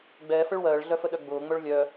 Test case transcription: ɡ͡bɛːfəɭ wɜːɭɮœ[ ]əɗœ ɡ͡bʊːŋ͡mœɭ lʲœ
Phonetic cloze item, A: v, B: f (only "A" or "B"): B